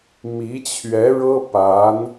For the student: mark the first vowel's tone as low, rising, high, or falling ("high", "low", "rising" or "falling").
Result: rising